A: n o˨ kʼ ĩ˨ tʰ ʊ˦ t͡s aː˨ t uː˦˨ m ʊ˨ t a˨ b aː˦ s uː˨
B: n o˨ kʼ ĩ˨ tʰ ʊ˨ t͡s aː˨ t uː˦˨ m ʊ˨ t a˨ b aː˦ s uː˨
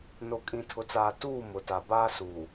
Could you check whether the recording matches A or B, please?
B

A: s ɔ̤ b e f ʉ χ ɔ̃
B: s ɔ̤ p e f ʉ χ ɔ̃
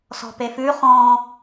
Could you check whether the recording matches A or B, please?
B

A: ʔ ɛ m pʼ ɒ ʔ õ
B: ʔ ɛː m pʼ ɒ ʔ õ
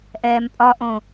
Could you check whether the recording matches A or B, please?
B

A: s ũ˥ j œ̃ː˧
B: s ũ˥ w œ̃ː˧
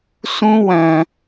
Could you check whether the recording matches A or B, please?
B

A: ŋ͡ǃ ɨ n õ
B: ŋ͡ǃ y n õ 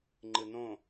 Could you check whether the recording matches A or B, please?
A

